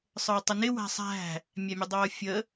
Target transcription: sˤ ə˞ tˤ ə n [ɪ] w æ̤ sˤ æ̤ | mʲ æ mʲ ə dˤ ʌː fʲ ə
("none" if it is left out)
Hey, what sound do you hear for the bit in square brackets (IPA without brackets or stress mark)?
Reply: ɪ